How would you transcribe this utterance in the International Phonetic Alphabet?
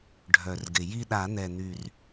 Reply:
ɖʱ œ˨˩ r ɡ ɪ˨˩ j i˦ ɗ a˨˩˦ n̪ ɛ˨˩ n̪ y˨˩ r

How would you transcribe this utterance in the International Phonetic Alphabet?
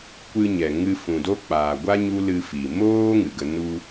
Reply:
kʷ ɨ˧ ɲ ɛ˨ ŋ ɨ˧ f ũ˨ d o˦ k͡p aː˨ ɡʷ a˦ ɲ u˦ l ɨ˧ f i˨ m oː˦ ŋ ɨ˨ ɡ ə˧ n u˧

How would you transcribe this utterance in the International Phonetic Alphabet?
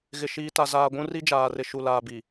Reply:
ɣ ɪ˨ ʃ iː˨ t a˨ z aː˨ ɡʷ ũ˦ r i˦ d͡ʒ aː˨ r ɪ˨ ʃ u˨ l aː˨ b i˨

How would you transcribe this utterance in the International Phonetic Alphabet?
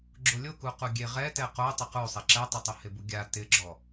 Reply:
ɡ͡ǁ ʊ lʲ o k u q u ɡʲ e ʁ ɛ t ɛ q o tˤ ɪ q u sˤ ɛ ǁ ɛ tˤ ʊ tˤ ʊ h ɪ b u ɡʲ a t ɪ ɡ͡ǁ ɔ

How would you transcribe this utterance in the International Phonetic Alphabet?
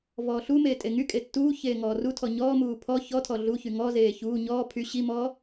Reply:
v ɔː ɬ u m eː tʼ e ŋ y kʼ e tː uː ç eː ŋ ɔː r u tʰ ɔ ɲ ɔː m uː pʰ ɔ ç ɔ tʰ ɔ ɮ u ç y ŋ ɔ z eː ç uː ɲ ɔː pʰ y ɕ i m ɔː

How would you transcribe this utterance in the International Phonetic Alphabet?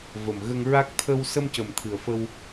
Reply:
v ə˨˩ m ɣ ə˧ ŋ ɹ a˦˥ k̚ t̪ʰ ə˧ w s ə˧ m c ə˨˩ m t̪ʰ ɨ˨˩ ə̯ f ə˧ w

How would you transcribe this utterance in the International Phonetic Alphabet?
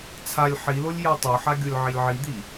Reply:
t͡sʰ a lʲ ħ i l o lʲ j a tˤ o ħ a ɡʲ o lʲ ʕ i lʲ ʕ i d̪ i

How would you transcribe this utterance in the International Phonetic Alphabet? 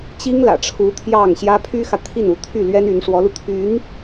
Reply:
t͡ɕ i˥ ŋ l ä̰˨˩ ʈ͡ʂʰ u˧˥ t̪ʰ j ɑ˥˩ ŋ ɕ j ä˥ pʰ y˥ x ä˨ t̪ʰ i˥˩ n u˧˥ t̪ʰ y˥˩ l ɥ ɛ˥ n y˧˥ n ʂ w ɔ˧˥ l u˧ t̪ʰ y˧˥ n

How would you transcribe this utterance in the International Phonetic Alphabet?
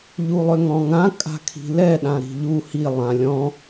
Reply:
ʎ u lˠ ʏ ŋ ɔ̃ ŋ ã kʼ a̤ kʰ i̤ l ɛ ɗ ã ɾ i̤ ʎ u h i lˠ ã lʲ ɔ̃

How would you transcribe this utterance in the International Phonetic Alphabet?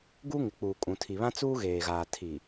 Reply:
ɡ u˦ ŋ ɪ˨ k͡p uː˨ kʼ ũ˨ tʰ i˨ β ã˦ t͡s uː˦ ɣ eː˨ ɣ aː˨ tʰ i˨

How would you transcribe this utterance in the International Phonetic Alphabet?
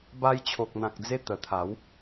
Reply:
b a˧ j t͡ɕʰ o˨ k̚ n̪ ã˨ k̚ d͡z e˧ t̪ ə˨˩ t̪ʰ a˨˦ w

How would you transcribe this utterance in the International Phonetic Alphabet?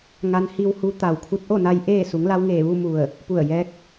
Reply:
ŋ a˧ n h i˧ w h u˧ t̪ a˧˩ w kʰ u˧ t̚ ʔ o˥˨ n a˧ j ʔ eː˥˨ s u˩˧ ŋ l a˧ w ŋ eː˧˩ ʋ u˥˨ m u˧˩ ə̯ | p u˧˩ ə̯ j ɛː˧˥ k̚

